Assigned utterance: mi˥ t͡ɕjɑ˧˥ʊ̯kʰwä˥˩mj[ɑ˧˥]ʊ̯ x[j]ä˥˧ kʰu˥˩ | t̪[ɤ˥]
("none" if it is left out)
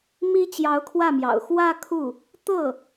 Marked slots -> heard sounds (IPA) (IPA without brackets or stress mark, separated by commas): ɑ̰˨˩, w, ɤ˥˩